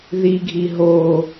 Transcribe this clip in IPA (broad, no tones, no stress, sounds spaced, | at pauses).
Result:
ð i ɡʱ i ɦ o